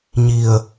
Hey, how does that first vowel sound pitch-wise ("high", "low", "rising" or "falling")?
low